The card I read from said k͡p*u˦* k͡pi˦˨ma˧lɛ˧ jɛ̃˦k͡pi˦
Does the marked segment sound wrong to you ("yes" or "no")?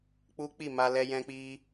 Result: no